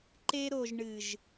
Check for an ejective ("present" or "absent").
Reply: absent